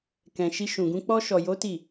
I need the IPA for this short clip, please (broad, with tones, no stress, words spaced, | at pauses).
kɛ̃˨ʃi˧ʃũ˨ɡũ˧ k͡pɔ˧ʃɔ˨jo˨˦ ti˦˨